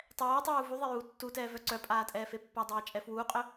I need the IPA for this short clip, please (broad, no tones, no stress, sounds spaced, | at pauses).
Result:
tˤ ɛː tˤ uː v u ðˤ e j uː tː u t ɛː v œ ǀ œ pʼ aː tʼ ɛː f e pː a dˤ ɛː t͡ʃʼ ɛ f w uː qʼ œ